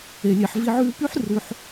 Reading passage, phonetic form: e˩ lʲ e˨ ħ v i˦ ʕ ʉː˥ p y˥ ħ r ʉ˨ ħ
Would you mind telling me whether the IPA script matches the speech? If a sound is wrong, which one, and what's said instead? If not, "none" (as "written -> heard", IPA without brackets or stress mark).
none